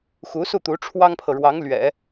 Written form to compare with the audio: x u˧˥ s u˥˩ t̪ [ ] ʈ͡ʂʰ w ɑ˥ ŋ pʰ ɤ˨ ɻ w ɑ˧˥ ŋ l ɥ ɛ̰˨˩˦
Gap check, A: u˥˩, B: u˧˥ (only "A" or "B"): B